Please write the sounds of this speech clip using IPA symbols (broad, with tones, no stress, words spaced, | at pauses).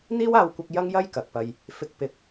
n̪iː˥waː˧wkʷɐ˧k̚ jɐ˥ŋjɐ˥j kɐ˨k̚pɐ˧j | fɪ˧k̚ pɪ˨k̚